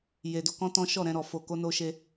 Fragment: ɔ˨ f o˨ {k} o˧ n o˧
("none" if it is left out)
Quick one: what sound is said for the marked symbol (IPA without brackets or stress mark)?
k